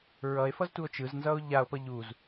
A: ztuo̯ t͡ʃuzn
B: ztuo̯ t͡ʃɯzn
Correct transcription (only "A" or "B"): B